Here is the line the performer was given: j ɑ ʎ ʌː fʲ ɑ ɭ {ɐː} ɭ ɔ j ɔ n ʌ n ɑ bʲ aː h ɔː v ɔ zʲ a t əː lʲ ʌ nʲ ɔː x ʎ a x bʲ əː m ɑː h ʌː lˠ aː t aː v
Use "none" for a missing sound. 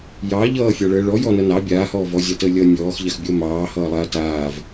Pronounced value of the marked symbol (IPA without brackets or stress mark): əː